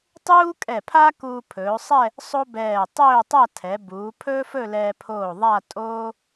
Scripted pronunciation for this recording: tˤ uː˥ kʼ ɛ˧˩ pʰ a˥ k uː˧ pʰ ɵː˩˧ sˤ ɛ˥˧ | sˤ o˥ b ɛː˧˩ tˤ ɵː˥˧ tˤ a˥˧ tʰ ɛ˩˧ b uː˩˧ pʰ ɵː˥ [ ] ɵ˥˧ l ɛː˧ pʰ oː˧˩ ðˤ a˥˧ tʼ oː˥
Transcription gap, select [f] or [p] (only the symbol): f